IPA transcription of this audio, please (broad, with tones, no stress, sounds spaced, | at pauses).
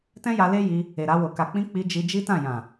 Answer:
t ɛ̃˦ j a˧ l e˦ j i˧ | e˨ ɾ a˧ w o˨ k a˨ k͡p ĩ˧ k͡p i˧ d͡ʒ i˧ d͡ʒ i˦ t ã˦˨ j ã˨